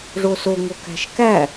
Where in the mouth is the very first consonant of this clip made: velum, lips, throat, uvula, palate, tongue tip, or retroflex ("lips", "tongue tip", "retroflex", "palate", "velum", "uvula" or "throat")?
retroflex